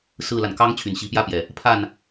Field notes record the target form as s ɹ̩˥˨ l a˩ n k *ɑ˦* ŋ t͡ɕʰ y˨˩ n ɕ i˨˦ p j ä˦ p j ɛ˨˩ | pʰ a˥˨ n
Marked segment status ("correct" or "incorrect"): correct